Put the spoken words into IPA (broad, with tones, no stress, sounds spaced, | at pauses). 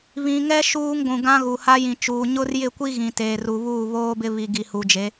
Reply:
β ĩ˨ ŋ ɛ˦ ʃ uː˦ ŋ ɡʷ ũ˨ ɡ ã˦ ɣ u˨ h a˦ j ĩ˨ t͡ʃ uː˨ ɲ ʊ˦ r j ɪ˦˨ kʷ i˦ ɣ ĩ˨ t eː˨ r u˨ β uː˦˨ β oː˦ b ɪ˦ β i˨ ɡ i˨ h u˨ d͡ʒ e˨˦